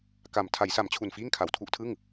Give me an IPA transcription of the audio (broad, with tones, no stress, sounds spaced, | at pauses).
k a˨˩ m tʰ a˩˦ j s a˩˦ m t͡ɕʰ u˨˩ n f iː˥˩ ŋ kʰ a˨˩ w tʰ u˥˩ ʔ tʰ ɯ˥˩ ŋ